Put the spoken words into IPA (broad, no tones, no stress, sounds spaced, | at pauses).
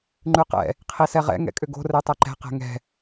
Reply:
ŋ͡ǃ ʉ q ɛ̰ | qʰ i s ɛ ʁ ɛ̰ ŋ ɛ̰ kʼ ʏ ɡ o̤ r ɛ tˤ ɛ ǃ ɛ̤ q ɛ̤ ŋ ɛ̤